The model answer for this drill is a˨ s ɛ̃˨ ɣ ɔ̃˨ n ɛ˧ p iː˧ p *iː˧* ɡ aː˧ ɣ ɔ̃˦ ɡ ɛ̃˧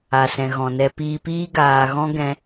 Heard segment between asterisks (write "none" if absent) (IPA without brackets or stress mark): iː˦